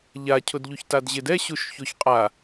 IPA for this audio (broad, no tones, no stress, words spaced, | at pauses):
ʎacʰʊdʎuç tadʑɪd ɛ ɕuʃçoçqʼa